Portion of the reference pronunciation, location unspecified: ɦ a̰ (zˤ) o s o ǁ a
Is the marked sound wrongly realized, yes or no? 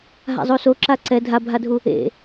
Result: no